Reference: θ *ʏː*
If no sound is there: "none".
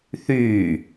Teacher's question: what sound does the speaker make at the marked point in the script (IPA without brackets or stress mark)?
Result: yː